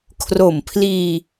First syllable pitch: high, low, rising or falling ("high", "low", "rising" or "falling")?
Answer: low